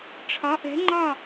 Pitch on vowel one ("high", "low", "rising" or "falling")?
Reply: rising